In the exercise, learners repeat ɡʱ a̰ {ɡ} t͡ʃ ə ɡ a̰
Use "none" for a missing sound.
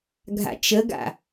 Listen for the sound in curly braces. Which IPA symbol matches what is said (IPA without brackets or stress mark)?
none